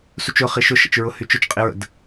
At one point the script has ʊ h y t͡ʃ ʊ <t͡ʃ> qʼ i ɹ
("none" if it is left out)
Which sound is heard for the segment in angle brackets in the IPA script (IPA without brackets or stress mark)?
t͡ʃ